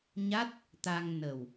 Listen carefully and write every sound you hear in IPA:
ɲ a˦˥ t̚ | t̪ a˧ ŋ n ə˨˩ w

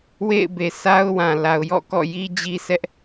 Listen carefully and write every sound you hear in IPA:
w ḛ˦˨ ɪ̯ b e˨ sʰ a˦ ʊ̯ w ã˨ l a˨ ʊ̯ j ɔ̰˦˨ k ɔ̰˦˨ j i˦ d͡ʑ i˦ s ɛ˦ ʔ

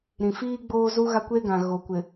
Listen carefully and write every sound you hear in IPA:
ɾ ĩ˨ f iː˦ ɡ͡b oː˦ z u˦ ɣ a˦ kʷ eː˦ ɡ ã˨ ɣ o˨ kʷ ɪ˨

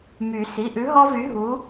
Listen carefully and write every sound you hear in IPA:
m y˨˩˦ s i˩˧˩ ʔ ʉ˨˥ ɦ ɔ˦ v y˨˥ ɦ u˨˥

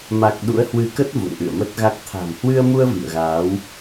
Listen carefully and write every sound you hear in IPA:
m a˨˩ k̚ ɗ ṵ˧˥ ə̯ h w ɨ˧ k ə˦˥ t̚ v ṵ˧˨ ŋ ʔ ɨ̰˧˨ ə̯ m ə˦˥ t̚ ɣ a˦˥ k̚ t̪ʰ a̤˨˩ m h w ɨ˧ ə̯ m u˧ ə̯ v ḭ˧˨ ə̯ ɣ aː˨˦ w

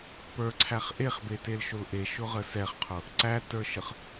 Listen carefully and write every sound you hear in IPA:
p ə˞ ǀʰ æ χ ʔ e χ b e t e l ʃ ʊ l ʔ e ʃ ʊ ʁ ə s ɛ χ qʰ ʊ | ǀ æ t ə˞ ʃ ə χ

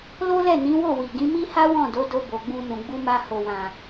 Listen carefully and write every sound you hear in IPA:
l o˦ l ɛ˦˨ n ĩ˨˦ w o˦˨ w i˨ ɡ ĩ˨˦ m i˦ h a˦ w ɔ̃˦˨ d o˨˦ d o˧ b o˨ ɡ͡b ũ˧ n ũ˨ ɡ͡b u˧ m a˧ h o˨ w ã˨

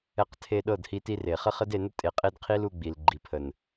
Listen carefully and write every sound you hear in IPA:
ɛ˧ q tʰ e˧ ɗ ɤ˦˨ d h i˧ t i˧ r e˨ χ ə˦ χ ə˦ d e˧ n ə˦ tʼ e˨ qʼ e˧ d qʰ i˦ l u˧ ɡ͡b i˨ l ɡ͡ǃ i˨ pʰ ə˨ n

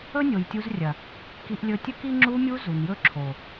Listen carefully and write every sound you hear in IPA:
ɵ˦ nʲ o˨ j tʲ u˧ z rʲ ɐ˨ | k i˧ ʔ lʲ ɵ˧ tʲ ɵ˦ k i˦ ŋ͡ǁ u˧ mʲ u˧ z u˨ n j ɵ˦ ǁʰ o˨

